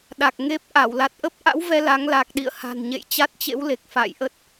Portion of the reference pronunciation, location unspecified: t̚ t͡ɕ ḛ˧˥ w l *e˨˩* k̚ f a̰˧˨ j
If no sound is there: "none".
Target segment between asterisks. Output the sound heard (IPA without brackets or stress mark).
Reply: e˨˩